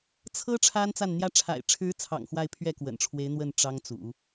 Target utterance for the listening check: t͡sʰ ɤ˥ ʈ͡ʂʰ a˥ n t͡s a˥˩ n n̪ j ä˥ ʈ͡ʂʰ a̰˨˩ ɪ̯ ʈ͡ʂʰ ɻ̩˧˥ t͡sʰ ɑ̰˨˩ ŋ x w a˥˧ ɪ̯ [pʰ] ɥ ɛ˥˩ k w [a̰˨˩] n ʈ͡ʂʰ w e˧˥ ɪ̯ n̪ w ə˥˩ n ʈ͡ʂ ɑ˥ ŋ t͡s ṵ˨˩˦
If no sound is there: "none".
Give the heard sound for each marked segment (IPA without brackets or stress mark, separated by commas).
pʰ, ə̰˨˩